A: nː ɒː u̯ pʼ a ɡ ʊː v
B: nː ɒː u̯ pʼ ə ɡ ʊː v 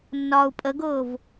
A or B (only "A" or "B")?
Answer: B